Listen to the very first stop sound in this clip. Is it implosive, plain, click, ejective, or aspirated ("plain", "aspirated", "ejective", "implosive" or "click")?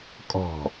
ejective